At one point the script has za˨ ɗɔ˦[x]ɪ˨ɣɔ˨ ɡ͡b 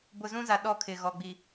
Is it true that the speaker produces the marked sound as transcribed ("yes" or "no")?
no